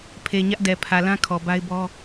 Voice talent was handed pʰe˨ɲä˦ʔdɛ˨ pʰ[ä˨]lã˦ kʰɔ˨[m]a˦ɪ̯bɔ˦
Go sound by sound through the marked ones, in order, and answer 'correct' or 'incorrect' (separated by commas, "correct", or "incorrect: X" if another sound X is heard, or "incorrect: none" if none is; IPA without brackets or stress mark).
correct, incorrect: b